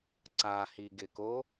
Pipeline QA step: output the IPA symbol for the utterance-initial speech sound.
ǀ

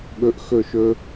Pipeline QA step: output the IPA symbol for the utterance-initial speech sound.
ɠ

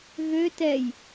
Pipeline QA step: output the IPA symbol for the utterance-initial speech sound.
ɣ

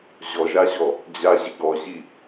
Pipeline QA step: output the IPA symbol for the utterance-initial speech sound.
ʑ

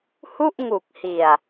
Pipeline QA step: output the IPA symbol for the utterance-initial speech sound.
h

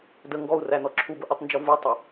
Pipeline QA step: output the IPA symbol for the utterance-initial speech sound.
d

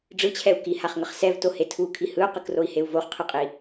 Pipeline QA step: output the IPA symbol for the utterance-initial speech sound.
ɖ͡ʐ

